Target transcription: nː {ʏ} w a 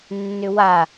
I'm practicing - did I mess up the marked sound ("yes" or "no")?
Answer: no